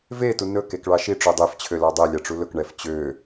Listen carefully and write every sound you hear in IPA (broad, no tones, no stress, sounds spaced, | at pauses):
v e t u n ɵ k e k ɭ ɑ ʃ i ʈ͡ʂ o dˤ e f t͡ɕʰ ø l ɑ dˤ ɛ lʲ ɑ ʈ͡ʂ u l ɵ k ɳ ɛ f t͡ɕ ø